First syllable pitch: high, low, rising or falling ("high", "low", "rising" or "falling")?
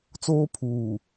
high